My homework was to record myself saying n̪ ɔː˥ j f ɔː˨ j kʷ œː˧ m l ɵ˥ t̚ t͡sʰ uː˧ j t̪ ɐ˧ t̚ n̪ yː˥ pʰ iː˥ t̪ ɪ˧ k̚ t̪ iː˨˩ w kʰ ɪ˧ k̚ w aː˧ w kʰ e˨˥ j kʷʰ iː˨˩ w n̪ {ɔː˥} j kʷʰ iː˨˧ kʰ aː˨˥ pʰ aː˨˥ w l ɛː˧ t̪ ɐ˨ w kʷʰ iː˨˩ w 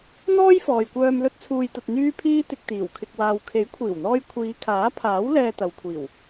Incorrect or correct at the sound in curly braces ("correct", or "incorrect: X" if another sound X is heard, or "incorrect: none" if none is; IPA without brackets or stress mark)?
incorrect: ɔː˧